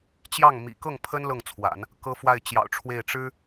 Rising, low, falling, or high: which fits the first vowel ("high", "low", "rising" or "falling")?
falling